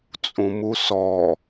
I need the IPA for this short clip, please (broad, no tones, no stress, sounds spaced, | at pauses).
t͡sʼ ũ m u s ɔ